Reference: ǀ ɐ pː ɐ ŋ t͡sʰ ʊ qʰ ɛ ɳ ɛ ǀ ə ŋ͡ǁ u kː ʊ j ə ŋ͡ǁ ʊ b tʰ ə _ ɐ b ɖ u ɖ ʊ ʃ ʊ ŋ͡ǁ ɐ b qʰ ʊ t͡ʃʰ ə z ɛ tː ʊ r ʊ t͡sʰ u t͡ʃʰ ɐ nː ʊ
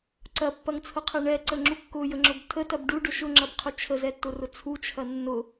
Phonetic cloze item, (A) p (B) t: B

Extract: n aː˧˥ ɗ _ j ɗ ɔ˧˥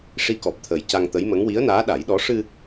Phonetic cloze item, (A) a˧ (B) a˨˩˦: B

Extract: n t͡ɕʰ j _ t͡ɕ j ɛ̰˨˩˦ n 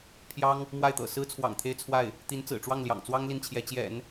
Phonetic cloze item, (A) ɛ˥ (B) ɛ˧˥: B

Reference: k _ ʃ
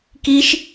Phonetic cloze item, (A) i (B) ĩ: A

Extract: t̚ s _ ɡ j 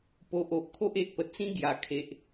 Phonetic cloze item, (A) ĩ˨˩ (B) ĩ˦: B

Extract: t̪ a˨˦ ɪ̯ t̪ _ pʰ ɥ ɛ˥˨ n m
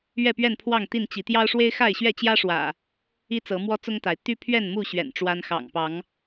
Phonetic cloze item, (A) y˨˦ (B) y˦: B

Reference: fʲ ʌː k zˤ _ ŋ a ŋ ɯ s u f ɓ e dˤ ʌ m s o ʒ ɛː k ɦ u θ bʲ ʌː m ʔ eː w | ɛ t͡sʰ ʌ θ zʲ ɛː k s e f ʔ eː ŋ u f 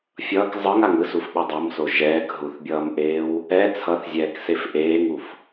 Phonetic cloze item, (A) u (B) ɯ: B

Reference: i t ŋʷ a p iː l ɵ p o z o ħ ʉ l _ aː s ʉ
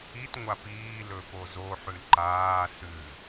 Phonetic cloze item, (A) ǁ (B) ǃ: B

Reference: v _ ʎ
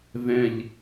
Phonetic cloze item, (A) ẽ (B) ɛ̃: B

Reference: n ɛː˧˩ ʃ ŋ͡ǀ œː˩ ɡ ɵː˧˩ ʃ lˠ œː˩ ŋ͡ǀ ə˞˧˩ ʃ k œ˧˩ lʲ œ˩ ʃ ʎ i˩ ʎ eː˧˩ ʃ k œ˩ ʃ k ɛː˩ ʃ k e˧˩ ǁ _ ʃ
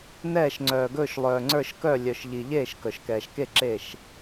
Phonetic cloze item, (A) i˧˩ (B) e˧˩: B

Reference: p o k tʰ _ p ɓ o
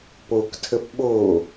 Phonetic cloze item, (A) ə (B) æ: A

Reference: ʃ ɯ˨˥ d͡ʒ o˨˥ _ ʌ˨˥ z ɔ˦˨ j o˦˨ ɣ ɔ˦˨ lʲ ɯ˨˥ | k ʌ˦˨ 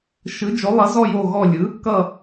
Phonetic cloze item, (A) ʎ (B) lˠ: B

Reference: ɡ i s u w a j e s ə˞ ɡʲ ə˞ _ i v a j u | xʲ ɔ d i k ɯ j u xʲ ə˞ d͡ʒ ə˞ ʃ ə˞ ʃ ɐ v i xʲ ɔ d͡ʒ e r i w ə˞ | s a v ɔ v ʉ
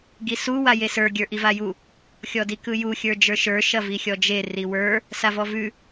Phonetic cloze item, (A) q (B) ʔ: B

